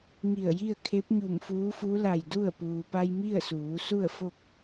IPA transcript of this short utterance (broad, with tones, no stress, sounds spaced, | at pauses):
ŋ i˧˩ ə̯ j i˥˨ ə̯ kʰ e˧˥ p̚ ɲ u˧˩ m f uː˧˥ f u˧˥ l a˧˩ j d u˥˨ ə̯ p uː˩ p a˧ j m i˥˨ ə̯ s uː˩˧ s u˥˨ ə̯ f o˥˨ k̚